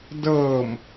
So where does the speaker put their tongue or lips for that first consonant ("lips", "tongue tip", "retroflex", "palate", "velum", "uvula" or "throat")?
tongue tip